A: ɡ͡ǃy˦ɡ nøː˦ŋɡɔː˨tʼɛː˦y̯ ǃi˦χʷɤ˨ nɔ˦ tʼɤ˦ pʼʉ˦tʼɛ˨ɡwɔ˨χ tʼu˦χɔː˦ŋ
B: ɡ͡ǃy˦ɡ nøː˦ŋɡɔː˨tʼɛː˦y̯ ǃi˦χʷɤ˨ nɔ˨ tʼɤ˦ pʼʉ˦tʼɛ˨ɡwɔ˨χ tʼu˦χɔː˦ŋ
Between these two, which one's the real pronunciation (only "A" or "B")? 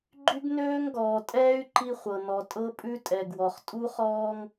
B